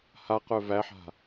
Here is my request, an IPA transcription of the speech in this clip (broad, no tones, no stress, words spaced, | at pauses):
ha qœvæħa̤